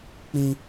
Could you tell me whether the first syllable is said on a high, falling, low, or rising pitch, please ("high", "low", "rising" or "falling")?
high